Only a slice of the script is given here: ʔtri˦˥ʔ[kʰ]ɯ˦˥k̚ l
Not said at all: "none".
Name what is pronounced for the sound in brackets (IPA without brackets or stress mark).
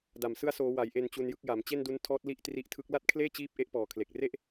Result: tʰ